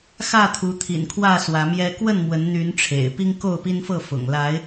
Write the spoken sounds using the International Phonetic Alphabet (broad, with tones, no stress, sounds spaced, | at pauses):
x ä˥˨ t̪ʰ u˨˦ t̪ʰ ḭ˨˩ n kʰ w ä˥˨ s w ä˨˦ m j ɛ˦ k w ə˥˨ n m w ə˨˦ n n̪ y˨˦ n ʈ͡ʂʰ ḛ˨˩ ɪ̯ p i˦ ŋ k o˥˨ ʊ̯ p i˦ n f ɤ˥˨ f ʊ̰˨˩ ŋ l a˨˦ ɪ̯